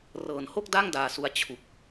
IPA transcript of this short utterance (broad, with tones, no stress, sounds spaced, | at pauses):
r ɤː˨˩ n h o˥˩ k̚ d a˥˩ ŋ d aː˧ s u˧ a̯ t͡ɕʰ u˨˩ k̚